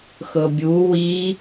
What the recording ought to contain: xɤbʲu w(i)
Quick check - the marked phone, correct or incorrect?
correct